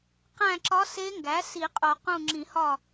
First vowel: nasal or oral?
nasal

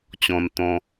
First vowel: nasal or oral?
nasal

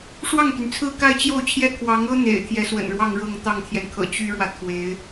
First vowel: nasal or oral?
oral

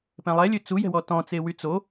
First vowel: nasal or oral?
nasal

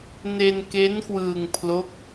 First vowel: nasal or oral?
oral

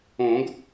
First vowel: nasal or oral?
nasal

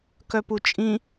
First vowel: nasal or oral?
oral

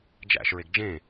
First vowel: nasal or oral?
oral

